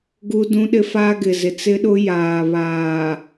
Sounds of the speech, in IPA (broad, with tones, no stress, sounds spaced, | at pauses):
ɡ u˦ d ũ˦ ɗ ɪ˦ f a˦ ɡ ɪ˨ z ɪ˨ t͡s ɪ˦ ɗ ʊ˦ j aː˨ β aː˨